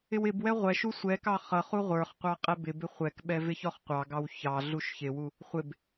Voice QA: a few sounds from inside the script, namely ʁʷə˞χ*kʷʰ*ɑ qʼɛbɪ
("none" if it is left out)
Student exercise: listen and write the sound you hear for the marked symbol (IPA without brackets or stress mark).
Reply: qʷ